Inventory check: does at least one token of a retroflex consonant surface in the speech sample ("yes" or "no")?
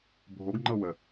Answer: no